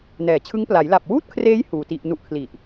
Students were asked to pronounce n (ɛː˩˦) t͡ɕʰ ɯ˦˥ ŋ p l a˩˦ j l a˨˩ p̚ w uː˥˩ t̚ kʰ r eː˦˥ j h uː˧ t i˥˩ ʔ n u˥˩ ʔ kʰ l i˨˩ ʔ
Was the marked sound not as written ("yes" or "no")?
no